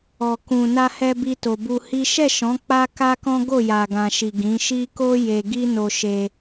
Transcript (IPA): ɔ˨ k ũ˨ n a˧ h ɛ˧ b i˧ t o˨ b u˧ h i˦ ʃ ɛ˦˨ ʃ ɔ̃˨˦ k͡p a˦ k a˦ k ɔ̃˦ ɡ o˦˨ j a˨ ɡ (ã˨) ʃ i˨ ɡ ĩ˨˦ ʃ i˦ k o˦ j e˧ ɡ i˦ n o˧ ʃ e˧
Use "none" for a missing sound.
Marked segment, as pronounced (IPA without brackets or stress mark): ã˨